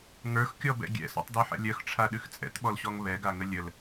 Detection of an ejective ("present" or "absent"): present